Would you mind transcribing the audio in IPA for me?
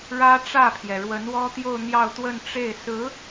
ɻ ä˥ ʈ͡ʂ ä˥˩ pʰ j ɛ˩ ɻ w ə˧˥ n w ɔ˥ t̪ j o˥˧ ʊ̯ n̪ j ɑ˥˧ ʊ̯ t̪ w ə˥˧ n ʈ͡ʂ e˥˩ ɪ̯ s ɹ̩˧˥

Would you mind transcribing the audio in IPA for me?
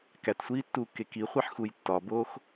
k æ t sʷ iː tː uː kː e k i χʷ i ħ x u j tː ɒ b oː x

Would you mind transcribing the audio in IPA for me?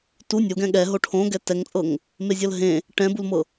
t u nʲ o ɡ ɛ̃ ɠ ɛ ɦ o ʈʰ õ ɡ ɛ t ɛ ŋ t͡sʼ ɤ ŋ | m e zʲ ɤ l ɦ ẽ | ʈ ɛ̃ b u l m ɤ

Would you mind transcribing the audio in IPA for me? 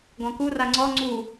ɡ ɔ̃ k u r a ŋ͡ǀ ɔ ŋ͡ǀ u

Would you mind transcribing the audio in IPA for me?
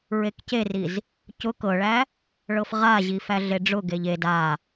ɹ e k c e r i z | c ʊ k ɤ ɭ æ | ɭ ɤ f ʁ a ʑ i f æ ɮ e ɖ͡ʐ ʊ ɡ e ʎ e d a

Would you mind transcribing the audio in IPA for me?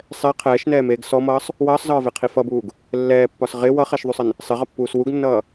sˤ ɛ qʰ ɛː ʃ n ɛː m eː ɡ s ɔ m ʌː sˤ | w ʌː sˤ z ɒː v e qʰ i f ʌ b uː ɡ | lː ɛː pː ɒ s ʁ ɪ w ʌ χ ɛ ʃ ðˤ u sˤ ɪ n | sˤ ɪ ʁ ʌ pː uː s w u ɡ nː ʌː

